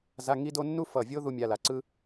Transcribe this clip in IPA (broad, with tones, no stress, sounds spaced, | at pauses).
z a˧˥˧ ŋ i˥ d o˥ nː u˥ f ʌ˧˩ vʲ o˥ ð u˥ mʲ a˧˥˧ l a˧˩ ǀ ɯ˥